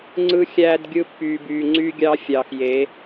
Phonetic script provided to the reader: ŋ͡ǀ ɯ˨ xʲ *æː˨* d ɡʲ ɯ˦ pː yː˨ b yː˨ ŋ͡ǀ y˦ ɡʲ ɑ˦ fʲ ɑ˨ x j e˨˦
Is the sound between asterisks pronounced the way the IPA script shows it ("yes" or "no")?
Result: yes